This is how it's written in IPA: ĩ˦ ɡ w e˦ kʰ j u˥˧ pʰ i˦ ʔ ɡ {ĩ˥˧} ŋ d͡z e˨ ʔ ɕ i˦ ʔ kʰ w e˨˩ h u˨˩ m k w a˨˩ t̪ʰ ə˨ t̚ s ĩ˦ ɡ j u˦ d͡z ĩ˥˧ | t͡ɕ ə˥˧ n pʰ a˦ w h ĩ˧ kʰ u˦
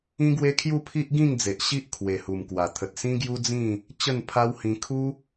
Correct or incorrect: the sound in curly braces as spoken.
correct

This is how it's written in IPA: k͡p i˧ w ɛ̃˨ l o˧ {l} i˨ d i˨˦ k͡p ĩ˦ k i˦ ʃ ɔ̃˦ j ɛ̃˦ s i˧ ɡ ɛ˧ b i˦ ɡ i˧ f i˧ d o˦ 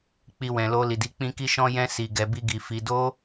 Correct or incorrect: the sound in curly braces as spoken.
correct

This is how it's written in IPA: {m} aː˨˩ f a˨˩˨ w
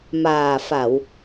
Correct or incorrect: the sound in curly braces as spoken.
correct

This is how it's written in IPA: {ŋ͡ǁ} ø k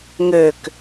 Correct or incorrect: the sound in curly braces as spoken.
incorrect: ŋ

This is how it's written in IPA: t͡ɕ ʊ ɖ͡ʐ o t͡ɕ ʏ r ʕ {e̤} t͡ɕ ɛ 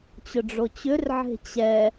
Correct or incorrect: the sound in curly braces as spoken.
correct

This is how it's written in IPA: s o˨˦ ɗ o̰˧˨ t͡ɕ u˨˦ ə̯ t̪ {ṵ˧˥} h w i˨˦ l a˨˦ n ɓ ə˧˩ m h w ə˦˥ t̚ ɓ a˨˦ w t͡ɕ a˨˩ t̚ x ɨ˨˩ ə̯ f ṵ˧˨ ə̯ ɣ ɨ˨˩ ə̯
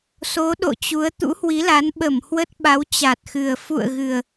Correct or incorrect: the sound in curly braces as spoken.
correct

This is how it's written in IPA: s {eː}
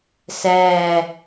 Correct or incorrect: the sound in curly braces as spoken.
incorrect: ɛː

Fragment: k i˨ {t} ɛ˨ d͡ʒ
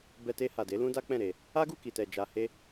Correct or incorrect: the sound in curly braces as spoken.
correct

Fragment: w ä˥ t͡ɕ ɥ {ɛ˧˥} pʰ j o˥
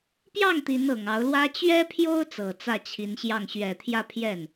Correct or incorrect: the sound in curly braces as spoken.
incorrect: ɛ˥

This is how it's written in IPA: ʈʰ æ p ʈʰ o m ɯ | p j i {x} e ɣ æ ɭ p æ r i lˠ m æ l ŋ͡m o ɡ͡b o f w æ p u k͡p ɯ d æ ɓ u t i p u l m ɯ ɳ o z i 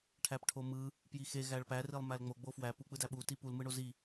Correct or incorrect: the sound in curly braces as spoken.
correct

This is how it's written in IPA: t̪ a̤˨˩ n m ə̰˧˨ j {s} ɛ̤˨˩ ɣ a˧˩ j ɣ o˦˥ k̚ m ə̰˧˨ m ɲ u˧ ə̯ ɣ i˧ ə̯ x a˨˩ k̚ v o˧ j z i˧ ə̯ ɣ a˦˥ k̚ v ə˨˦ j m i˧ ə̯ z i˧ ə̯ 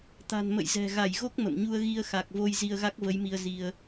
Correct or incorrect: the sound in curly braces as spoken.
incorrect: z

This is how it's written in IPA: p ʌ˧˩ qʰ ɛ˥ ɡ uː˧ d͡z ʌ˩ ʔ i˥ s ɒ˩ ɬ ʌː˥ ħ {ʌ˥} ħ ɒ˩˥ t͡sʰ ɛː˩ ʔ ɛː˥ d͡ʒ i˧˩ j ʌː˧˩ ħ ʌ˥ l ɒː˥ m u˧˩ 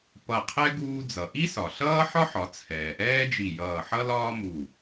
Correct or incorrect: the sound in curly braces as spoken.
incorrect: ɒ˥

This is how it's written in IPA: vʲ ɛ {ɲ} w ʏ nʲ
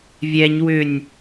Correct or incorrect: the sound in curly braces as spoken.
correct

